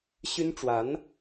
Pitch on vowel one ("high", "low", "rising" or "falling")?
high